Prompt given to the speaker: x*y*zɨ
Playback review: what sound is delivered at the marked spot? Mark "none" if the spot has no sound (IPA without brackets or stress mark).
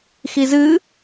i